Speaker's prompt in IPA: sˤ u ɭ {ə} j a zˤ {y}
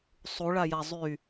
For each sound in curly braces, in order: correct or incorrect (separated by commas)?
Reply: incorrect, correct